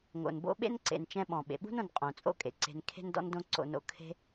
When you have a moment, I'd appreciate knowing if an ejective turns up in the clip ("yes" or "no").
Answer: yes